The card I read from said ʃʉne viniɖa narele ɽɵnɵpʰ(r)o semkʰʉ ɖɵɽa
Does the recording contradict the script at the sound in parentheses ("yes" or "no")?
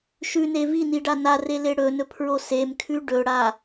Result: yes